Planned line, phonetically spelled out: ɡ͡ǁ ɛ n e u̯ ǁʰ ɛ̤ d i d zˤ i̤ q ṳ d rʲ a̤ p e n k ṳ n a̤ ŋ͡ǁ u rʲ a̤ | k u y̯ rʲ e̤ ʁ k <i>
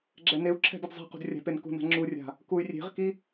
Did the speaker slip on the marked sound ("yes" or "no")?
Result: no